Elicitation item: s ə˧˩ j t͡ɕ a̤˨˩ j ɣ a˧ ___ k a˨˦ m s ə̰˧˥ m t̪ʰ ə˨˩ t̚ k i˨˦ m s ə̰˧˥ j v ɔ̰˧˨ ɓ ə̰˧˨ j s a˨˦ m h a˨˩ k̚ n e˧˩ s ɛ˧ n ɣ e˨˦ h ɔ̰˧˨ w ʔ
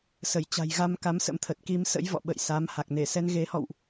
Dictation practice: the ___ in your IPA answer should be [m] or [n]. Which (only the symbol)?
m